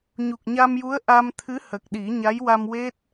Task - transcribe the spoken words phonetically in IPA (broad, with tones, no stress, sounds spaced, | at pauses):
ɲ u˨˩ k̚ ɲ a˧ m j u˧˥ ə̯ ʔ a˧ m t̪ʰ ɨ˧˥ h ə˨˩ k̚ ɗ i˨˩˦ ɲ a˧˥ j w a˧ m w e˦˥ t̚